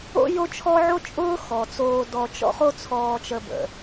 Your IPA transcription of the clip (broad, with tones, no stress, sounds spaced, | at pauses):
o̰˥ j o˥ t͡ʃʰ ɔ˥ ʕ o˦ t͡ʃʼ ʊː˦ x ɔ˩ t͡s oː˨ d ɔ˨ t͡ʃ ɔ̰˦ χ o˦ t͡sʰ ɔː˨ t͡ʃ ə˨ b ə̰˩